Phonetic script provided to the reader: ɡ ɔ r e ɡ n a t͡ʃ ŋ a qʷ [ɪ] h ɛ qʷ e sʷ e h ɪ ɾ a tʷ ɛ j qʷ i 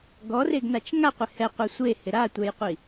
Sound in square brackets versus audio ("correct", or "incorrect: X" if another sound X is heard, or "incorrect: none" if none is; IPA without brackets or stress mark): correct